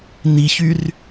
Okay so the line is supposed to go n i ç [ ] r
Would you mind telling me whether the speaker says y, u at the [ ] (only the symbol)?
y